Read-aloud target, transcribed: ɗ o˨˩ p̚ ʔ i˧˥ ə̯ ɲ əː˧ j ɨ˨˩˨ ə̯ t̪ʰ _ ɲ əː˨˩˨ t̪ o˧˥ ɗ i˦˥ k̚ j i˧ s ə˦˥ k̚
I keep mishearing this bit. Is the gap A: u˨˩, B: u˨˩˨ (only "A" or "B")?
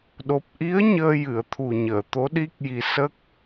A